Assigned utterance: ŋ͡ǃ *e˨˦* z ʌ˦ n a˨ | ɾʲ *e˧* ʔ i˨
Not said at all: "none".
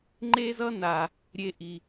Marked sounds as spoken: e˦, e˧

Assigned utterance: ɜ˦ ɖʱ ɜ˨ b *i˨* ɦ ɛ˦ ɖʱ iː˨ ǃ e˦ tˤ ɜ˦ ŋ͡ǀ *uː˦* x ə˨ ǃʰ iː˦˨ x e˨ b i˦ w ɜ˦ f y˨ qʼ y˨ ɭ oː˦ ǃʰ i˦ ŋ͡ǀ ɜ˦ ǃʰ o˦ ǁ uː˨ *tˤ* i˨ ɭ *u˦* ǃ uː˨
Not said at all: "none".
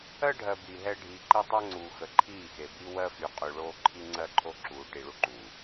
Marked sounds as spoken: i˨, uː˨, ʈ, u˦

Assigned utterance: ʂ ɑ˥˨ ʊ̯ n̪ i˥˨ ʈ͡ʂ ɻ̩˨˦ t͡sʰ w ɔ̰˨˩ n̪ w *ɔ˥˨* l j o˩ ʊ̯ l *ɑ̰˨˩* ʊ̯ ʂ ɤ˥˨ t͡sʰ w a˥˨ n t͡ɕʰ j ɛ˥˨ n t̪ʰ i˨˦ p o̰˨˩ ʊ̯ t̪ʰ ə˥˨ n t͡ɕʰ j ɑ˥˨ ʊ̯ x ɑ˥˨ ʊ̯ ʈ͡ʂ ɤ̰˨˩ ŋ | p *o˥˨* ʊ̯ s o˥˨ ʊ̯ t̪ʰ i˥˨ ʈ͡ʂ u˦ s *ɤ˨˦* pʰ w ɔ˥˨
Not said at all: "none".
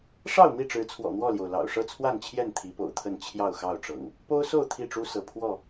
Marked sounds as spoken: ɔ˥˨, ɑ̰˨˩, o˦, ɤ˨˦

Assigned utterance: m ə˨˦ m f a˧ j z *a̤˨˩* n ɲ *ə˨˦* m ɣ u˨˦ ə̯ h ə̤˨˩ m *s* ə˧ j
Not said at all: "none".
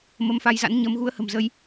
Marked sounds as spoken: a̰˧˥, ə˨˦, z

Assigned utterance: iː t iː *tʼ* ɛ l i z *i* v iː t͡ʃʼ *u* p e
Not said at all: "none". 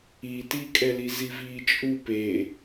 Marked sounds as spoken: kʼ, i, u

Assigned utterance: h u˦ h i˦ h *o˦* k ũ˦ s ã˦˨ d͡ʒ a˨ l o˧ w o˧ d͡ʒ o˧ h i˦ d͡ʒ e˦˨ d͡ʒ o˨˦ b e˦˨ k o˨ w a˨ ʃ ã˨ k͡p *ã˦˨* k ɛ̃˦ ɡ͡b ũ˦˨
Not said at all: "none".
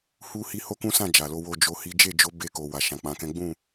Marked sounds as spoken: o˦, ã˨˦

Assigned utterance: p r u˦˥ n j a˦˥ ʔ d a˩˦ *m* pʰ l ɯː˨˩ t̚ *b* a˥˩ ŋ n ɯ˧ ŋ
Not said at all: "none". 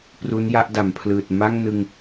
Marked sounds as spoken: m, m

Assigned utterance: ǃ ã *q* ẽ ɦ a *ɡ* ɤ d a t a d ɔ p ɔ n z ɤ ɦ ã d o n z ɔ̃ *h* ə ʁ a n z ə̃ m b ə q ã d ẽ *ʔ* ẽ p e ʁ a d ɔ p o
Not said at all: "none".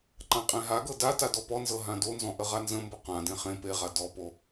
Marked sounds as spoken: qʼ, ɡ, ʔ, χ

